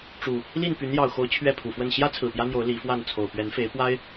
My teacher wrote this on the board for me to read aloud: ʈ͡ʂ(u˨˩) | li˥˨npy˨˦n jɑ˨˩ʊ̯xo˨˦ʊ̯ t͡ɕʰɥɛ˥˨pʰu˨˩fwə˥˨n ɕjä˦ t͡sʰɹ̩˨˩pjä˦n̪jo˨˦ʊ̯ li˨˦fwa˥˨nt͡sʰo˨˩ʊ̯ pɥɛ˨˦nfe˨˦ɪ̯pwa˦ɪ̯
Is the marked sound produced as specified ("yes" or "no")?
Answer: yes